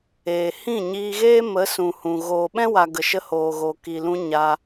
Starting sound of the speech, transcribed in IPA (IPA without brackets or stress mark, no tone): eː